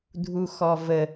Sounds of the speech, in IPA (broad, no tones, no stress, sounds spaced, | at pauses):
dʱ u x ɔ v ə